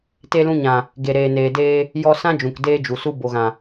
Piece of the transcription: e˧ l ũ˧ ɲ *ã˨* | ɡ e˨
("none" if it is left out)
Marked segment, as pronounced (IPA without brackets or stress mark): ã˨